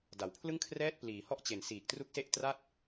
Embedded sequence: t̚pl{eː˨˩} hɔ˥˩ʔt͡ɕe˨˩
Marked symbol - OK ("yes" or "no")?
no